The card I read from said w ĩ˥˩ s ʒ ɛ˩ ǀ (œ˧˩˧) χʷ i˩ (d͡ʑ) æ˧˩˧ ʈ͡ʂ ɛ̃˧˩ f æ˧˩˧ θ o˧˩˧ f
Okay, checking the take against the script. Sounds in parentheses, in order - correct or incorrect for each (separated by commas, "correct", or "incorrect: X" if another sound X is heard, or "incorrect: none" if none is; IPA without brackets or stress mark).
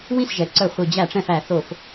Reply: correct, correct